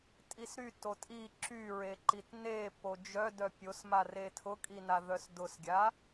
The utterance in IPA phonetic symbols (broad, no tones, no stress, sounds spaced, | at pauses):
tʼ i s ɾ y t o tʼ i ǁ y ɹ e ǃ i t n e p o d͡ʒ œ d œ pʲ o s m a r e tʰ ʊ kʼ i n a ð œ s d ʊ s ɡʲ a